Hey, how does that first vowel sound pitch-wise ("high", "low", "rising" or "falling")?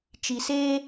low